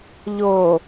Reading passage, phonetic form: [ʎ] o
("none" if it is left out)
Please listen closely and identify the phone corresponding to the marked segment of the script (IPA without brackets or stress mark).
ʎ